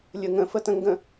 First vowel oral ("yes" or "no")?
yes